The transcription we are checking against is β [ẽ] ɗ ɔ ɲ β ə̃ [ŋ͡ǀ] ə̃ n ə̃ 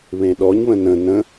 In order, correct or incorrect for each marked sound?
correct, incorrect

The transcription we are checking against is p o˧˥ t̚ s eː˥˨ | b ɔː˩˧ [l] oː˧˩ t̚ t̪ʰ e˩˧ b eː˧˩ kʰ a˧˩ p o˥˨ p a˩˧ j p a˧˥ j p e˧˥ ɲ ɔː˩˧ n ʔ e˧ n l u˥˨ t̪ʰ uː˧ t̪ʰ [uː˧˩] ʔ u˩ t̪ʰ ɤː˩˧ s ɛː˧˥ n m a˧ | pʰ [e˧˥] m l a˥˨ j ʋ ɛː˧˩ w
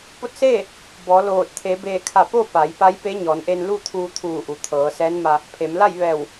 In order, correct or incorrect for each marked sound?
correct, correct, incorrect

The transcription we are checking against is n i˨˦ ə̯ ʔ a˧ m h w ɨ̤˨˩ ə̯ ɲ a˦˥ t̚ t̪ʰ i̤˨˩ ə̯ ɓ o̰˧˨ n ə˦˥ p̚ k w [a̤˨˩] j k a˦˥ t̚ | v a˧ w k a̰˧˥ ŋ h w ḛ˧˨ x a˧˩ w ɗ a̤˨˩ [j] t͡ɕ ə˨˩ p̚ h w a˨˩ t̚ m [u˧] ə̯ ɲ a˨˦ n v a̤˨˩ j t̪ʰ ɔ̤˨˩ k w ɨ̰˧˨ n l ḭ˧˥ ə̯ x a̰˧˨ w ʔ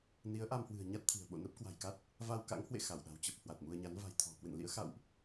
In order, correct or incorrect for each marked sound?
correct, incorrect, correct

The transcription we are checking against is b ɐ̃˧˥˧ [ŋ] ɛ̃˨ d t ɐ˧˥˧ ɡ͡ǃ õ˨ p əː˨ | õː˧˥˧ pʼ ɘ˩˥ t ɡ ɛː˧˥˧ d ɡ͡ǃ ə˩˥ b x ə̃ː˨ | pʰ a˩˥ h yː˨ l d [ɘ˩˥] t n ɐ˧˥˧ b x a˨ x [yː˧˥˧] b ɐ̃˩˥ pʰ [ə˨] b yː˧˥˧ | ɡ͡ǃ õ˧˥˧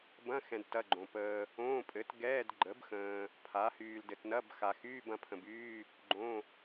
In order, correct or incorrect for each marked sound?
incorrect, incorrect, correct, incorrect

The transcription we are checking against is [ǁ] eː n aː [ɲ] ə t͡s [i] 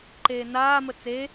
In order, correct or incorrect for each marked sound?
incorrect, incorrect, incorrect

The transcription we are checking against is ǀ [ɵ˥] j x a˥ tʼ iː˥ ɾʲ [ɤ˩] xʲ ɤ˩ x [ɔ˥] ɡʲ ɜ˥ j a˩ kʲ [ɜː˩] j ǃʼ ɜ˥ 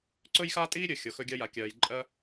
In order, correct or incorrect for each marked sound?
correct, incorrect, incorrect, correct

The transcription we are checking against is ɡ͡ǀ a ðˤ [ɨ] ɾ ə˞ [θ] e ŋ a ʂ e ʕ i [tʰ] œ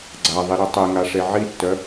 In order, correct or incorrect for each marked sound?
incorrect, incorrect, incorrect

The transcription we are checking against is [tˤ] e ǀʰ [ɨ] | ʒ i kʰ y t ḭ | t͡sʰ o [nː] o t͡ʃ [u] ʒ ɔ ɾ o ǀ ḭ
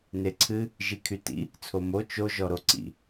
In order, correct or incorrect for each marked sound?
incorrect, correct, incorrect, incorrect

